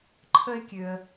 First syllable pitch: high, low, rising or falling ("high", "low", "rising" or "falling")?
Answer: high